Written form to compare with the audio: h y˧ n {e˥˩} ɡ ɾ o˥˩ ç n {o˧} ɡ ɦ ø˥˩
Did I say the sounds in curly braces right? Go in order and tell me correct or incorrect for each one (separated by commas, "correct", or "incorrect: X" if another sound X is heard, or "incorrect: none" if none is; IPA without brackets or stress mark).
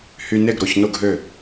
correct, incorrect: o˥˩